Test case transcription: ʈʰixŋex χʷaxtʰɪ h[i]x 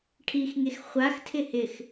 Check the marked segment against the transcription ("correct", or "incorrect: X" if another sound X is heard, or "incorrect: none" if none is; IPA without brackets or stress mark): incorrect: ɪ